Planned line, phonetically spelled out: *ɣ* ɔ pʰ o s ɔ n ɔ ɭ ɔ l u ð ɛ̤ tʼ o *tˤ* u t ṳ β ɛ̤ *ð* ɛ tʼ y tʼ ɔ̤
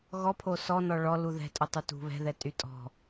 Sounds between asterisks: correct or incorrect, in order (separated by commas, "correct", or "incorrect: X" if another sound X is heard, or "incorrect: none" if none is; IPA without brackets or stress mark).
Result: correct, correct, correct